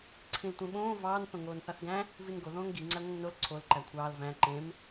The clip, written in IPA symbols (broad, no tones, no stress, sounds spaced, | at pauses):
ǀʰ ĩ l tʷ ẽ ɓ õː v ɑː n θ õ ŋ oː n θ ɑ θ ɡ æ̃ | v i n ɡ o ð õː ŋ ɡ i ŋ͡ǀ æ ŋʷ ẽ ŋ n o l ǀʰ o l ǃ æ kʷʰ ɑː l v æ̃ ǃ ẽ m